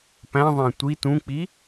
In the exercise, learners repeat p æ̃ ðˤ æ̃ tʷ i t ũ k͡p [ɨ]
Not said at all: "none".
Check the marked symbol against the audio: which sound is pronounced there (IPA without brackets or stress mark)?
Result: i